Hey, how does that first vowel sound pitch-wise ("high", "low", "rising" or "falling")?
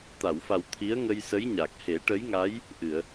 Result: low